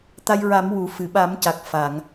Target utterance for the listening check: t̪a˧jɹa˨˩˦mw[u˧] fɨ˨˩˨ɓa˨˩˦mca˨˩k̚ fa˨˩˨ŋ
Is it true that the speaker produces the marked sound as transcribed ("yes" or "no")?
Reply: no